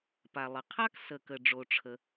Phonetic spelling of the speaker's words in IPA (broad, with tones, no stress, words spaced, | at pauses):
pa˩lˠə˩qʰa˥k sə˩kə˩ɖ͡ʐo˩ʈ͡ʂʰə˩